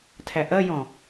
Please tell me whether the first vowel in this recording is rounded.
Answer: no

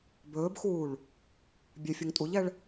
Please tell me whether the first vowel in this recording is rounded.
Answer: yes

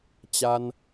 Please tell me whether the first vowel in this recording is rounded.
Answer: no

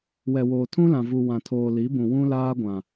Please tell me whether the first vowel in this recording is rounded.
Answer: no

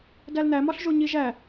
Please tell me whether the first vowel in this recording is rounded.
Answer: no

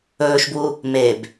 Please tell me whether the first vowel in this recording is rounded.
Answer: yes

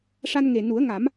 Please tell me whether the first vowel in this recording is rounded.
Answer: no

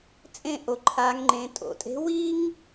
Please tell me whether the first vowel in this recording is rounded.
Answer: no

